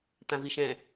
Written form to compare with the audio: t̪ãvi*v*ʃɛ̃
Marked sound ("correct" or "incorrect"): incorrect